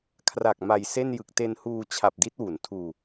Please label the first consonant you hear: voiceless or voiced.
voiceless